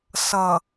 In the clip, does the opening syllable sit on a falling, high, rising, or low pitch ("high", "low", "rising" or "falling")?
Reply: low